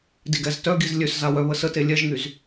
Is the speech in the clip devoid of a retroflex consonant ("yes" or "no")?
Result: yes